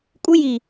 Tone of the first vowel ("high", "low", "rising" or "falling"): high